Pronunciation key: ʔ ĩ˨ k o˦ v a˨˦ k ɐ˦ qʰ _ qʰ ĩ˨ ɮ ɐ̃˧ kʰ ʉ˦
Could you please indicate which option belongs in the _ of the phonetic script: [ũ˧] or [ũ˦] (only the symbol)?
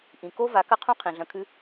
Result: ũ˦